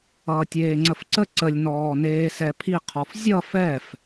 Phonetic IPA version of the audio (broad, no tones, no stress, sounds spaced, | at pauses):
ʌː tʲ eː ŋ͡ǀ ə f ǀ ə ǀ ə lʲ n ɔː n eː s ɛ pʰ i qʰ ɔ f zʲ ʌ f ɛ f